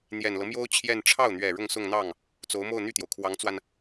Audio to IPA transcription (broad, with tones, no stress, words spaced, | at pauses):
n̪jɛ˨˩nlɤ˦mjo˥ʊ̯ t͡ɕʰjɛ˥˧n ʈ͡ʂʰɑ˥˩ʊ̯n̪ɥɛ˨˩ ɻʊ˥˧ŋsʊ˥˧ŋn̪ɑ˥˩ŋ | t͡so˧˥ʊ̯mo˥˧ʊ̯ n̪y˥˩t̪jo˩ʊ̯kʰwɑ˧˥ŋt͡swa˧n